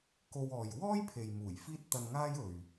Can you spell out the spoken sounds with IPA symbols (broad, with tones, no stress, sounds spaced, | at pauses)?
k o˧ w ɔː˨ j w ɔː˥ j pʰ e˨ j m uː˨˩ j f iː˥ t̚ t̪ ɐ˧ n ŋ aː˥ j ɵ˨ ɥ